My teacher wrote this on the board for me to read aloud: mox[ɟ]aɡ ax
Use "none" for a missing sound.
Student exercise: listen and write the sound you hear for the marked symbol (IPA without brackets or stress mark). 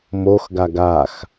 ɡ